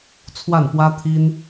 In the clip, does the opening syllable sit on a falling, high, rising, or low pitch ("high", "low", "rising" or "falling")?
falling